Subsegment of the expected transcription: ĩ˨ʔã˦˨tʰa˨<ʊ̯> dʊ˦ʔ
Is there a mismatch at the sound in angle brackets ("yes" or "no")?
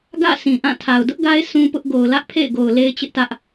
no